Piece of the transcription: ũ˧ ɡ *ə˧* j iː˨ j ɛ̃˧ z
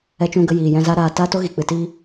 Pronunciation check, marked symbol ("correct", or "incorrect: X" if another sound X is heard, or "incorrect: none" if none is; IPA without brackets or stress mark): correct